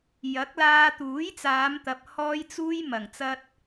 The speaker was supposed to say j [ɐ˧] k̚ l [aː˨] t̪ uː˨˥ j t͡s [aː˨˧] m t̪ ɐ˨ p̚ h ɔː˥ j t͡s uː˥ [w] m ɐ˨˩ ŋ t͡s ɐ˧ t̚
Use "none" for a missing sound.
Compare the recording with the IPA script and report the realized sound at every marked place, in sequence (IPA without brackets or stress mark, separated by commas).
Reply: ɐ˨˥, aː˧, aː˨˧, j